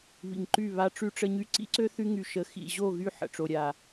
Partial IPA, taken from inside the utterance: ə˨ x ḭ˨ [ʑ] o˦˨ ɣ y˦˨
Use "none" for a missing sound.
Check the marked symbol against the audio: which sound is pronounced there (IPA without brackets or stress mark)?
ʑ